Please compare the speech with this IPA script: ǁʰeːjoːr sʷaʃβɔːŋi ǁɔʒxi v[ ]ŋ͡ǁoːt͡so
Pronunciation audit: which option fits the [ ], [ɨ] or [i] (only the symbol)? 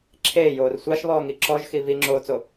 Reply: i